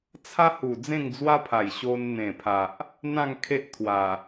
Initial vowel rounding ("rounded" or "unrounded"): unrounded